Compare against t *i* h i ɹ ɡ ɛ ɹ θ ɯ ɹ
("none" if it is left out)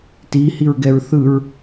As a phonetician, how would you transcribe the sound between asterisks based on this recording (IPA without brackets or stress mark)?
i